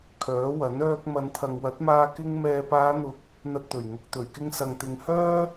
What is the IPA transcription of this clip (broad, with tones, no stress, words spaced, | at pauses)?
kʰœː˨˥wɐ˨˥n œː˧k̚ mɐ˨˧nt̪ʰɐ˨ŋwɐ˨˥t̚maː˧ kɪ˥ŋ mɛː˨paː˨˧n̪ʊ˨˥k̚ | n̪ɐ˧t̚t̪ɵ˨˩ɥŋʊ˨k̚ t̪ɵ˨˩ɥkɪ˧ŋ sɐ˨ŋt̪ɪ˨˧ŋhœː˥